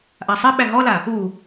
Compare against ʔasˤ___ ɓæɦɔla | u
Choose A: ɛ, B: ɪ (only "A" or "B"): B